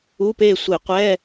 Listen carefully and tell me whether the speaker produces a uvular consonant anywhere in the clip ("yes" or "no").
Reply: yes